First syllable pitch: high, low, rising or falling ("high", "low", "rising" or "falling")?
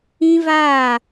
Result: high